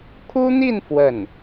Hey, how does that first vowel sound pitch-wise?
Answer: high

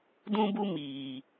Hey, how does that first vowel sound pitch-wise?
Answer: high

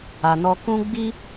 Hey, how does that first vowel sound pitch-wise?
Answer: low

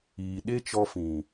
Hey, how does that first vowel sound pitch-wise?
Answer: low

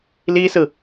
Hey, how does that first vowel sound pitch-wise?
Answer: high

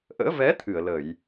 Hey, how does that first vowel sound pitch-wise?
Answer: rising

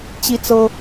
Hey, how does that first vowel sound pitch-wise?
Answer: high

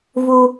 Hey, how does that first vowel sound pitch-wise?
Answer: high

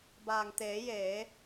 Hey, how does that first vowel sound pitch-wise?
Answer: low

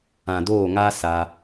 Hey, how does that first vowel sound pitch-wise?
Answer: low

